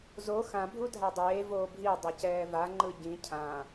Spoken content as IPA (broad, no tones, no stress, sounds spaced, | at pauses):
z o x ã bʱ u dʱ a dˤ eː v oː bʱ i dˤ ʌ c ɛː v a ŋ͡ǃ ɯ ɟ ĩ cʰ ã